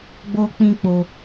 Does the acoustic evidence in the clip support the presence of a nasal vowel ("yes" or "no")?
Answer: yes